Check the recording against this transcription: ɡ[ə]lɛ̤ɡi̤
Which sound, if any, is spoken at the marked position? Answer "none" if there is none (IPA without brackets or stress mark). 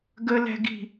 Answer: ə